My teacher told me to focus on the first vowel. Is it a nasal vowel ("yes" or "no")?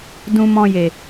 yes